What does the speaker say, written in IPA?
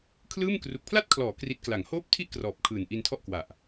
kʰ l ɯː˥˩ m k r u˨˩ k̚ pʰ l a˥˩ t̚ kʰ l ɔː˩˦ k r i˦˥ t̚ k l a˩˦ ŋ h oː˥˩ p̚ tʰ i˥˩ ʔ k r ɔː˨˩ p̚ kʰ ɯː˨˩ n ʔ i˧ n tʰ ɔ˥˩ ʔ k w a˨˩ ʔ

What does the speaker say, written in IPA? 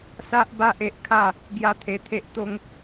s a˦ ʔ b a˦ ʔ e˦ ʔ kʰ a˥˧ | ɡ j a˦ t̪ʰ e˧ t̪ʰ e˦ ʔ t̪ o˦ ŋ

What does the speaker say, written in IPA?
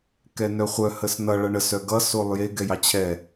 k ɛ n œ χʷ œ h ə s n ʌ ɭ ʌ ɳ ə s œ ɡ ʌ s o lˠ j e ɡ ɛ j ɑ t͡ɕʰ ɛ

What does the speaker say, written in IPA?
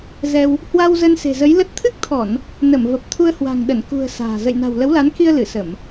z ɛ˧ w | h w a˧ w z ə˧ n s e̤˨˩ z ə˨˦ j l ə˦˥ t̚ t̪ʰ ɨ˦˥ k̚ t̪ʰ ɔ˧˩˨ n | n ə˧˩ m v ə˨˩ p̚ t̪ʰ u˧ ə̯ h w a̤˨˩ ŋ ɗ ə˧˩ n k ṳ˨˩ ə̯ s a̤ː˨˩ z ə̰˧˨ j n a̤˨˩ w l ə˨˦ w l a˨˦ n k i˧ ə̯ l ɨ˧˩ s ə˧˩˨ m

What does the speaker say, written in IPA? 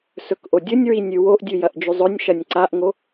s ɵ k ʔ o dʲ ɵ nʲ ɹ i nʲ ʉ w o ʔ dʲ ʉ j ɐ ʔ d͡ʒ ʉ zˤ ɵ nʲ ʃ ɐ nʲ ǀ a ʔ ŋ o

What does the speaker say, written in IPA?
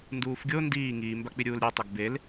n d uː f ɡʲ o n d iː ŋ iː m b a k͡p i ɾʲ uː l ɾʲ e tˤ ʊ ɡ b e l

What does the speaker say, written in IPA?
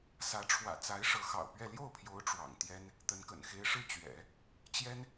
s ä˧˥ ʈ͡ʂʰ w ä̰˨˩ t͡s a˧˥ ɪ̯ ʂ ɤ˧˥ x ɑ̰˨˩ ʊ̯ p ɥ ɛ˥˧ l j o˥˩ ʊ̯ pʰ j o˧˥ ʊ̯ ʈ͡ʂ w ɑ̰˨˩ ŋ t̪ j ɛ˥ n | t̪ ə˧˥ n k ə̰˨˩ n x e˥ ɪ̯ ʂ ɻ̩˥˩ t͡ɕ ɥ ɛ̰˨˩˦ | t͡ɕ j ɛ˥ n

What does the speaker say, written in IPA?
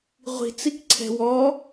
ʁʷ i̤ t͡s i k ǀʰ ɛ̤ w ɔ

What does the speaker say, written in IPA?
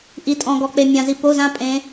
ʔ i˧ tʼ ɔ̃˧ ɡ ɔ˧ k͡p e˧ mʲ ã˧ z i˧ p o˧˥˧ z ã˦˥ pʼ ẽ˦˥

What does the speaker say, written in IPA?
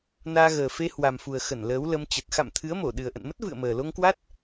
n aː˧ ɣ əː˨˩ f e˧ h w a˨˩ m f u˨˩ ə̯ x ə˧˩ n l əː˨˦ w l ə˧ m t͡ɕ ə˨˩ t̚ x a̰˧˨ m t̪ʰ ɨ˨˦ ə̯ m o˧˩ ɗ ɨ˨˩ ə̯ ʔ ə̰˧˨ n m ə˦˥ t̚ v ɨ̰˧˨ ə̯ m əː˨˩ l o˧ ŋ k w a˦˥ t̚

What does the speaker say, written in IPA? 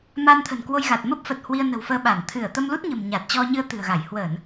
m a˧ n t̪ʰ ə̤˨˩ n k w o˧ j ɣ a˨˩ t̚ m ə˦˥ p̚ f ə˨˩ t̚ h w i˧ ə̯ n ə̤˨˩ w f əː˧ ɓ aː˧˩ n t̪ʰ ɨ˧˩ ə̯ t̪ ə˧ m l u˦˥ t̚ ɲ ə̤˨˩ m ɲ a˨˩ t̚ t͡ɕ ɔ˧ ɲ ɨ˧ ə̯ t̪ ɨ̤˨˩ ə̯ ɣ a˧˩ j h w əː˧˩˨ n

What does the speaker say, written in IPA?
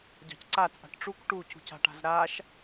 ɟ ɑ̤ c ǀ a t͡sʼ a̤ ʈ ʈ͡ʂ u k ʈ u c ṳ c a̤ ʈ a̤ z ɾ a ʃ

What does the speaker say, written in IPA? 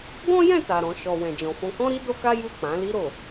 ɡ ɔ̃˦ j ɛ̃˦˨ t a˨ ɾ ɔ̃˨ ʃ ɔ˨ w ɛ̃˨ d͡ʒ ɔ̃˨ f ɔ̃˧ k ɔ̃˦ ɾ i˦ d o˦ k a˦ j u˦˨ k͡p ã˨˦ l i˧ ɾ o˨

